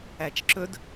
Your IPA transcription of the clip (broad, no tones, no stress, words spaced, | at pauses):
æt͡ʃǁɵd